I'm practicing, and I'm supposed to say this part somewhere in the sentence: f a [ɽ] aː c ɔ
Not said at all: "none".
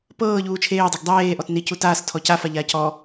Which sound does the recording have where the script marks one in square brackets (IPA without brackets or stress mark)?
ʎ